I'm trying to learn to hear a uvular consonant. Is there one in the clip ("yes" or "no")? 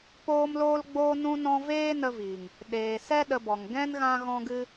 no